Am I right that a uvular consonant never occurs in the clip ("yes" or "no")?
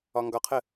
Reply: no